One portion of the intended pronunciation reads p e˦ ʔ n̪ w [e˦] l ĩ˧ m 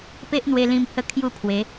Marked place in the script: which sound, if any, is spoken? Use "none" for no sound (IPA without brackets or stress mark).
e˧